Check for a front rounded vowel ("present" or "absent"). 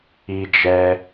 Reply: absent